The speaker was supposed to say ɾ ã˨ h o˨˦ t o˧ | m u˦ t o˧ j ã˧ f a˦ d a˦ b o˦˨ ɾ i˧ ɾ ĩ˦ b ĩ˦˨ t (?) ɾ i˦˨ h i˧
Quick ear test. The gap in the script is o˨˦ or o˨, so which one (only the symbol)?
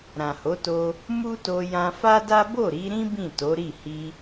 o˨˦